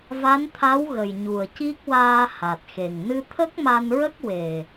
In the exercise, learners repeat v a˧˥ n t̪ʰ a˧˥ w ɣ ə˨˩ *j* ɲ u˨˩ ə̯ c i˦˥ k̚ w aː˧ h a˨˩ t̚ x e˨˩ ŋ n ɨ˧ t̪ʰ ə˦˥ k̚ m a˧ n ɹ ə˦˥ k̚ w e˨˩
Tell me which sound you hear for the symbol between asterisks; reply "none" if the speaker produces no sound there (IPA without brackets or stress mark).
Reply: j